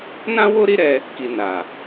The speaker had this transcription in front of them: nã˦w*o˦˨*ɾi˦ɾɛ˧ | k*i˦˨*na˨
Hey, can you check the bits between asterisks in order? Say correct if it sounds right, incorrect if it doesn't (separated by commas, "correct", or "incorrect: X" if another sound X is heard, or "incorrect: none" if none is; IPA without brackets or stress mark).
incorrect: o˦, incorrect: i˨